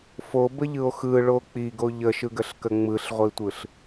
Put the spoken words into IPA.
f o b ə ʎ ɯ o̯ x ɯ ɭ o k͡p i ɡ o ʎ ə ʃ ɯ ɡ ə ɬ k ə ŋ͡m ɯ ɬ ʁʷ i tʷ ɯ ɬ

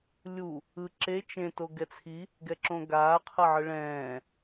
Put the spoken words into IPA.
lʲ u | ɯ ǁ e t͡ʃ ẽ t o ɡ ɛ t͡sʰ i | ɡ ɛ ǁ õ ɡ aː qʰ ʌ ʕ ɯ ɭ ɛ̃ː

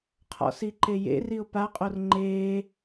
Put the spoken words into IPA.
qʰ ɔ̰ s i ǃ e j ḛ r i ʊ̯ p a qʼ o r ŋ͡ǃ eː

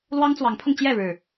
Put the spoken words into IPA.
l w ɑ˦ ŋ t͡s w ɑ˨˦ ŋ pʰ ʊ˧ ŋ t͡ɕ j ɛ˥˨ ɻ ɻ̩˥˨

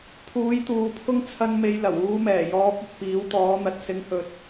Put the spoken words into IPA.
pʰ uː˨˥ j t̪ uː˨ pʰ ʊ˥ ŋ t͡sʰ ɐ˧ n m e˨˧ j l ɐ˨˩ w uː˨˧ m ɛː˨˩ j ɔː˨˥ k̚ ɪ˧ k̚ p iː˨˥ w t̪ ɔː˨˥ n̪ ɐ˨ t̚ s ɪ˨˧ ŋ h ɵ˨ t̚

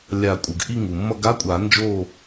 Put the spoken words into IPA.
lʲ a˨˩˦ kʷʼ ɯ˩ ɡ ʔ i˦˨ ŋ u˩ mː ʌ˦˨ ɡ a˧˥˧ kʷʼ a˨˩˦ n d͡ʒ o˦˨

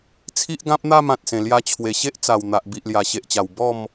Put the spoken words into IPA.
t͡sʰ i˦ ʔ ɡ ã˦ p̚ n̪ a˥˧ m ã˨ t̚ s ẽ˨˩ l j a˧ t͡ɕʰ w e˨˩ ɕ e˦ ʔ t͡s a˨˩ w n̪ a˨ ʔ b i˨ ʔ l j a˨˩ ɕ e˨ ʔ t͡ɕ a˨˩ w b ɔ˥˧ m

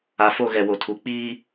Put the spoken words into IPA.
a˨ f o˦˨ ɣ ɛ˨ w o˨ tʰ u˨ k͡p iː˦

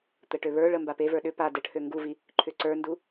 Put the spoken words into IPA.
t̪ ə ʈ ø β ə˞ ɭ ə m b a p e v ə˞ ɗ ʏ p a d ə ʈʰ ø ŋ ɡ u v i | ǃʰ ʏ ǀ ə˞ n d u

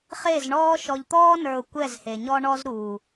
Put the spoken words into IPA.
χ e˦˨ z ɳ ɔː˦ ʃ ɔ˨ ʎ t̪ ɔː˦ n ə˞˨ ʊ̯ kʷ ɛ˦˨ z h e˨ ɲ ɔ˦ ɳ ɔ˦ z ɾ uː˨

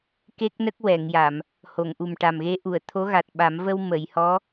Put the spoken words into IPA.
k e˦˥ k̚ n ə˦˥ k̚ w ɛ˨˩˨ ŋ j a˨˩˨ m | h o˨˩˨ ŋ ʔ u˨˩ m ʈ a˨˩ m ɣ e˧˥ ʔ u˨˩˨ ə̯ t̪ʰ o˧˥ ɣ a˨˩ t̚ ɓ a˨˩˦ m v ə˧ w m ə˨˩˨ j h ɔ˧˥

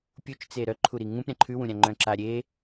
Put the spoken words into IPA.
pʲ u t͡ʃ t͡s e ɾ œ ǃʰ u ɾ i ŋ ũ p ɾʲ ã ǃʰ ʉ w ũ ɾʲ ã ŋ͡ǃ œ̃ ǁ a ɾʲ e

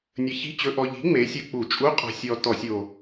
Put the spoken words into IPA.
nʲ ə˨˥ ç i̤˧˥˧ t͡ɕ ɵ˧ ʔ ɔ˧ ʎ i̤˨˥ ŋ͡m e˨˥ sʲ ə˧˥˧ k͡p u˧˩˧ t͡ʃʼ u˧˥˧ qʼ ɔ̤˧ sʲ ɔ˧ t ɔ˧˩˧ sʲ o˨˩

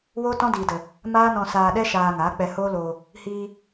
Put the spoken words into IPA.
w oː˦ t ɔ̃˦ d iː˨ d ə˨ | m aː˦ n ɔ̃˧ s aː˧ ɗ ɛ˦ ʃ aː˨ ŋ aː˨˦ k͡p ɛ˧ h oː˦ l oː˧ | h iː˧

